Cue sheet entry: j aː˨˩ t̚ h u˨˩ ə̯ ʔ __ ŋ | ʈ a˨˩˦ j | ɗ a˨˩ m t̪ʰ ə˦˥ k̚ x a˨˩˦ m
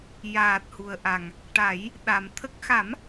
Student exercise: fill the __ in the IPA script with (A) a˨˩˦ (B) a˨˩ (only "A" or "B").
B